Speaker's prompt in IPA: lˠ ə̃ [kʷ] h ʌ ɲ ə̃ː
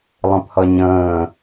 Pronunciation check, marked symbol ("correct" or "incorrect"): incorrect